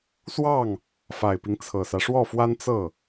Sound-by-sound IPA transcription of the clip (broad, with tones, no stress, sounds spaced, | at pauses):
s w ɑ˥˩ ŋ | f a˨˩ ɪ̯ p i˦ ŋ t͡sʰ ɤ˨˩ s ä˦ ʂ w ɔ˥˩ f w a˥ n t͡s ɤ˥˩